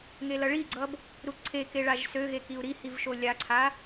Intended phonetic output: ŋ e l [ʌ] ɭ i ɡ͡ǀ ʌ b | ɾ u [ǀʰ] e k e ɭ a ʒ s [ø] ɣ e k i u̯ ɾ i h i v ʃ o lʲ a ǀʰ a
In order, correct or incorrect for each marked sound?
correct, correct, correct

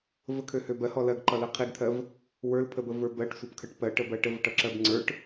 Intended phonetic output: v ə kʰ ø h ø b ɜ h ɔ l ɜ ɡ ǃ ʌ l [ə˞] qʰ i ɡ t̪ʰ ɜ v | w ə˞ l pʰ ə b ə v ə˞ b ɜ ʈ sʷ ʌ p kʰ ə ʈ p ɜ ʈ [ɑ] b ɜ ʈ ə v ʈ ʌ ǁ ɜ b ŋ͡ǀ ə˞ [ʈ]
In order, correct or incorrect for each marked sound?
incorrect: ɜ, incorrect: ə, correct

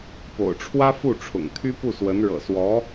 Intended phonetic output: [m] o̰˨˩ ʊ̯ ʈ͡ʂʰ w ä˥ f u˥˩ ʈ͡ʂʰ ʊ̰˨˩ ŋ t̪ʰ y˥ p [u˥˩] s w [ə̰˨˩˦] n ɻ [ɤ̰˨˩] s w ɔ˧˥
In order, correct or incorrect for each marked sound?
incorrect: p, correct, incorrect: ə˧˥, correct

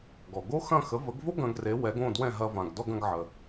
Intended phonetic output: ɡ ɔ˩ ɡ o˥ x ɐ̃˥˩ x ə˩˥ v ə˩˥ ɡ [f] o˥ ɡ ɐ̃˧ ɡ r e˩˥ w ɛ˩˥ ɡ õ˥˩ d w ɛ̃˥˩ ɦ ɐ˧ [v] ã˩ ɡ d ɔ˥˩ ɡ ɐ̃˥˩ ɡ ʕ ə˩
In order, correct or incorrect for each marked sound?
incorrect: v, correct

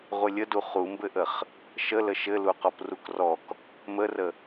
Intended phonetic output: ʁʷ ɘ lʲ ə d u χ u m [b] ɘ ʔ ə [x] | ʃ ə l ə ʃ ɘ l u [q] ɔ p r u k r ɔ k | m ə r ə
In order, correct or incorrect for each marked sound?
correct, incorrect: χ, correct

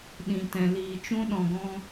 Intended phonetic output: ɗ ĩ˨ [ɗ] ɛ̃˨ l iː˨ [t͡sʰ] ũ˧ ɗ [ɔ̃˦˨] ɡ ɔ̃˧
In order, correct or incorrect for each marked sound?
incorrect: t, incorrect: t͡ʃ, incorrect: ɔ̃˨

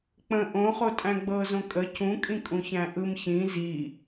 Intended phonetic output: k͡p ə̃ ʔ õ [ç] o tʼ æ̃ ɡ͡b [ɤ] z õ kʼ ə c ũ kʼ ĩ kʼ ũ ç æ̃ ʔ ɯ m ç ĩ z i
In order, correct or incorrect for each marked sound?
incorrect: χ, correct

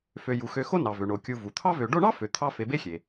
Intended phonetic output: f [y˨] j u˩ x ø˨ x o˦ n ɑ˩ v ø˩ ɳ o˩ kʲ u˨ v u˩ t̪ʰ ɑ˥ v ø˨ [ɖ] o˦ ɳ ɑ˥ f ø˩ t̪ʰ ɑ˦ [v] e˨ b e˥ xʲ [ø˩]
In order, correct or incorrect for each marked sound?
incorrect: ø˨, correct, incorrect: f, incorrect: e˩

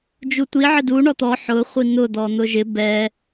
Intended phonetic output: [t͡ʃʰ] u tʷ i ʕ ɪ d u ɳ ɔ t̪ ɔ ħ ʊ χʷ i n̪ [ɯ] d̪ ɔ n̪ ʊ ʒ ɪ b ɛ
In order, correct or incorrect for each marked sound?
incorrect: d͡ʒ, incorrect: ʊ

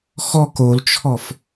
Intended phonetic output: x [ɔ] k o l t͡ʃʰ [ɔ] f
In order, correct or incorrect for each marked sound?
correct, correct

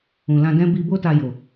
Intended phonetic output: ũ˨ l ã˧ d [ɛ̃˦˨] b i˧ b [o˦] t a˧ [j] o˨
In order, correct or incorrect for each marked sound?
incorrect: ɛ̃˦, correct, correct

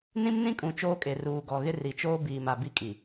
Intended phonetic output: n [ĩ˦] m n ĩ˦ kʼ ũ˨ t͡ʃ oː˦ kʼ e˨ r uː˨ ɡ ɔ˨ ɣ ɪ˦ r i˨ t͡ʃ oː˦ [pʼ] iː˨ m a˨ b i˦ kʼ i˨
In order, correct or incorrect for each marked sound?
correct, incorrect: b

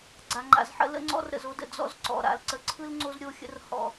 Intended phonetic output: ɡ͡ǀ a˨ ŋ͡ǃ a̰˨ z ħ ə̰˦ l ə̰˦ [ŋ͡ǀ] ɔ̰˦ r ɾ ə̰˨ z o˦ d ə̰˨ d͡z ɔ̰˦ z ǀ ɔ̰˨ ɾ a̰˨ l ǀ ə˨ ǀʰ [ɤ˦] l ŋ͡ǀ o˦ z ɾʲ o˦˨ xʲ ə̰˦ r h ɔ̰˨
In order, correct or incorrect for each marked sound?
correct, incorrect: ɯ˦

